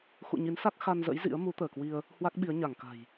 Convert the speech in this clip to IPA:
x ṵ˧˨ ɲ i˨˦ n s a˦˥ k̚ x a˧ n z ə̰˧˥ j z ḭ˧˥ ə̯ m u˨˦ t̪ əː˧˩ k w i˧ ə̯ | h w a˦˥ k̚ ɓ i˨˦ ə̯ ɲ a˧˩ ŋ k a̤˨˩ j

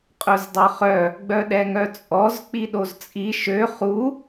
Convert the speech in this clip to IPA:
qʼ œ z dˤ œ χ œ | ɡ͡b œ ɗ ɛ ŋ œ t͡sʼ ɔ z k͡p i ɗ o z t͡sʼ i ʃ ø χ u

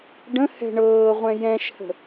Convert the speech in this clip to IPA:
ɖ ə̃ h ɛ̤ ɳ ɤː ʁʷ ɛ̃ j ɛ̃ ʃ h ə̤

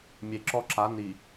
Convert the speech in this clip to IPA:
mʲ e˨ ǁ ɔ˦ ǁ a˨˦ n i˨

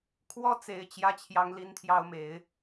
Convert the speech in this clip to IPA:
kʰ w ɔ˦ t͡s e˨˦ ɪ̯ t͡ɕ j ä˦ t͡ɕʰ j ɑ˦ ŋ l i˦ n t̪ʰ j ɑ˦ ʊ̯ m e˨˦ ɪ̯

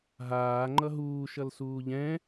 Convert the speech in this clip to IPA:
ɦ aː ŋ͡ǃ ʌ ɦ uː ʃ ʌ l s uː ʎ ɛ̃

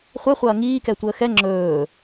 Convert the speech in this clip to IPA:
χʷ ɛ χʷ ɐː ŋ iː k ɛ tʷ əː x ɛ ŋ͡ǁ ɵː

